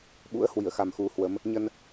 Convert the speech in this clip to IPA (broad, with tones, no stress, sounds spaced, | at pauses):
ɓ ṵ˧˥ ə̯ h w i˧˩ ə̯ x a˨˩ m x u˨˦ h w ə˨˦ m | ɲ ə˧ n